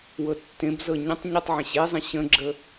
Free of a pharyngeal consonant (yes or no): no